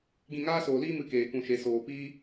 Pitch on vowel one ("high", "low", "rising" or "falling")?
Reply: falling